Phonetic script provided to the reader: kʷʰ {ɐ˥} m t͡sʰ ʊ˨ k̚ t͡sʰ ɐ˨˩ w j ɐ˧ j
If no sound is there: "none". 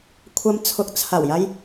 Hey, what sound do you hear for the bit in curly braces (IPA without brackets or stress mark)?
ɐ˧